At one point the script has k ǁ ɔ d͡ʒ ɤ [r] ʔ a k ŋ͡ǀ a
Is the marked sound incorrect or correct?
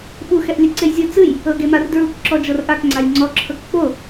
correct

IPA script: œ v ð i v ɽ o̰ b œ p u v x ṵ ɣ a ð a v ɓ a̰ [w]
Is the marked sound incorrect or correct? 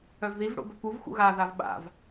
incorrect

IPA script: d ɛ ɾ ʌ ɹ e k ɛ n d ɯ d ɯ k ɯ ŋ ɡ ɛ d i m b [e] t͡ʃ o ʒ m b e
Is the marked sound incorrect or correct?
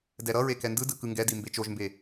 correct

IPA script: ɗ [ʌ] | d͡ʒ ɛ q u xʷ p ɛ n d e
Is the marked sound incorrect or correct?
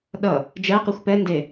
correct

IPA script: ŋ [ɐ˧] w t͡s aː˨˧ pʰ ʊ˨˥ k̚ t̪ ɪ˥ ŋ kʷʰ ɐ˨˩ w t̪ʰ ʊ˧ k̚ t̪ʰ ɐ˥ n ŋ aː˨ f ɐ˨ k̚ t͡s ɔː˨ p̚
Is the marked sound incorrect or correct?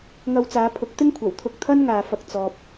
correct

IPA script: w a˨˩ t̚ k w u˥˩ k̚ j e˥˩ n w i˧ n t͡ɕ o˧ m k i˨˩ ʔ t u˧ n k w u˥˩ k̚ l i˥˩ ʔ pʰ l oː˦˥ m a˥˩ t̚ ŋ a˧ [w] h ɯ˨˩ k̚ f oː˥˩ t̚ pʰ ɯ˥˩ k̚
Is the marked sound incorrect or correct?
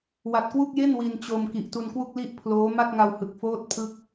correct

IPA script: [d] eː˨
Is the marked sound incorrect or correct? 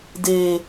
correct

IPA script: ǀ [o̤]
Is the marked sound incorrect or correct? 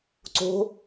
correct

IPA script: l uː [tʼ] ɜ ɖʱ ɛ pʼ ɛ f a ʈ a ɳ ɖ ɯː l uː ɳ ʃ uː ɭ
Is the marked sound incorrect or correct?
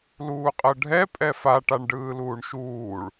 incorrect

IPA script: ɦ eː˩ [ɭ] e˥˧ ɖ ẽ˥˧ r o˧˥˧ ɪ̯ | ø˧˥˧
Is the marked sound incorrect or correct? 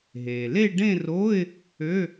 incorrect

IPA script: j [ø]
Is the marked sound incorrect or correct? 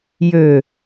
correct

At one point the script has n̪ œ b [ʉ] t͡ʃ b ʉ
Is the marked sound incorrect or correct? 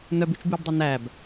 correct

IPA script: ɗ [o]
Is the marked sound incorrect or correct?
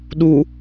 incorrect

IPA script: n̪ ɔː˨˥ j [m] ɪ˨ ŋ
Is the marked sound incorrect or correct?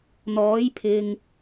incorrect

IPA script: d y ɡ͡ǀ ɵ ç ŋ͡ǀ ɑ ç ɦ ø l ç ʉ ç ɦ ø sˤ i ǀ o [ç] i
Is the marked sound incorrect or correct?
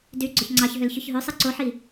incorrect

